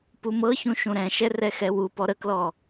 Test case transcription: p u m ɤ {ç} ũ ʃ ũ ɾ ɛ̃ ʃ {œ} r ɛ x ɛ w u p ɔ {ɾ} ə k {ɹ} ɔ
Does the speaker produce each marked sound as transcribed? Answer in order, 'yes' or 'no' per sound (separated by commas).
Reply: yes, no, yes, no